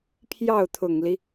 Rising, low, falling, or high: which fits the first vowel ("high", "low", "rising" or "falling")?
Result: falling